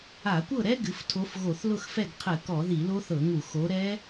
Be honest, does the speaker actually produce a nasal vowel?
no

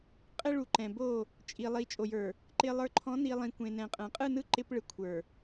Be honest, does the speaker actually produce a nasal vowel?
yes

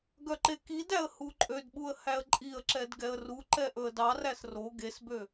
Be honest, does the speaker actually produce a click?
yes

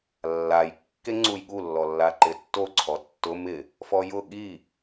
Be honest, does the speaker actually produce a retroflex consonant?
no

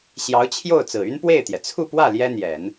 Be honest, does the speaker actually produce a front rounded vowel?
yes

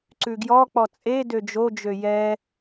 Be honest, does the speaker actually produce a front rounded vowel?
yes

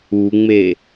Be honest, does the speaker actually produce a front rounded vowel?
no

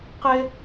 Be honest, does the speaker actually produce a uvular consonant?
yes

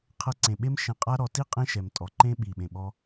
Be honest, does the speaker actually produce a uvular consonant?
yes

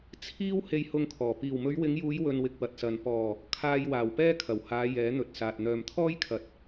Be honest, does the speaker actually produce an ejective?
no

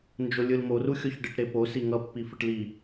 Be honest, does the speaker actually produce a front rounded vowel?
no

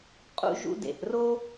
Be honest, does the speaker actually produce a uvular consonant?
yes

